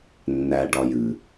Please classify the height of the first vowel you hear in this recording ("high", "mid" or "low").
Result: low